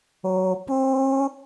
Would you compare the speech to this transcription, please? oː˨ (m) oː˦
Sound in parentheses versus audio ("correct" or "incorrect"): incorrect